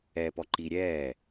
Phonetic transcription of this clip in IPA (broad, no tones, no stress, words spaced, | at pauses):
ɛːpɔ ǃi ɾʲɛː